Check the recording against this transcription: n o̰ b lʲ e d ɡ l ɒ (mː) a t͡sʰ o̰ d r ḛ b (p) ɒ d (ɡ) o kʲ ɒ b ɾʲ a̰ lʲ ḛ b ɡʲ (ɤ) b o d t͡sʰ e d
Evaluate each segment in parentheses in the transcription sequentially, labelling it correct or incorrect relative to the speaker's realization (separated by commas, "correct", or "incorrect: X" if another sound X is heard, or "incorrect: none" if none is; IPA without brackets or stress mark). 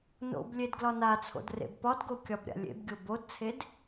incorrect: n, correct, correct, incorrect: o